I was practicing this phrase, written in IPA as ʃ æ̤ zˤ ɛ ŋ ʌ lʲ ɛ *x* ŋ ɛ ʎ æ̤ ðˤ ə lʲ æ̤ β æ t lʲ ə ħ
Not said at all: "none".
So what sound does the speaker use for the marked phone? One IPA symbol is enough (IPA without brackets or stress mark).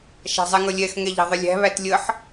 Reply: x